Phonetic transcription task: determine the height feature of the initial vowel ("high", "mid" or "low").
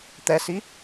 mid